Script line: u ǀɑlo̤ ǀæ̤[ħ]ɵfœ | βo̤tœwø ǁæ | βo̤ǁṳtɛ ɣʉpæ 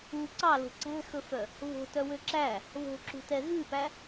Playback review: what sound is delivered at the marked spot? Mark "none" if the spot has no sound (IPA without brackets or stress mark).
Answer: x